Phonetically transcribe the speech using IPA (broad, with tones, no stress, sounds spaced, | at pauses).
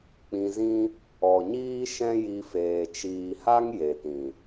k͡p ĩ˧ z ĩ˦ | ɔ˨ ɲ iː˦ ʃ ɛ̃˦ j i˧ f eː˨ t͡ʃ iː˨ h a˦ ŋ j e˨ t ĩ˨